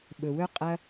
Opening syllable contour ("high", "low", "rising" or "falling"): low